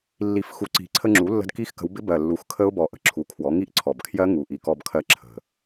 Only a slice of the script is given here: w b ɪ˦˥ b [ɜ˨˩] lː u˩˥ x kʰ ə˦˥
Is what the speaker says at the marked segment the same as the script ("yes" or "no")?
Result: yes